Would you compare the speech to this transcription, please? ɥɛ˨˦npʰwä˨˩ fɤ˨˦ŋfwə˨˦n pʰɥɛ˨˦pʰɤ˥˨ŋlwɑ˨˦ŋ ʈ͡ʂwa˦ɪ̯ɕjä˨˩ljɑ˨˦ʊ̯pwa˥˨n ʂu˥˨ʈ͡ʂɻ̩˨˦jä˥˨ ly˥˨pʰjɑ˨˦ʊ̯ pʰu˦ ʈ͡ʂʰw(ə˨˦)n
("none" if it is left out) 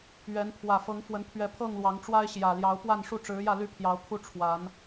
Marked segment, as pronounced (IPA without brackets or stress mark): a˨˦